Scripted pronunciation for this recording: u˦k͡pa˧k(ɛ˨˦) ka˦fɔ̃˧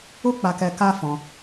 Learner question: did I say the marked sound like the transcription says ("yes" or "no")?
no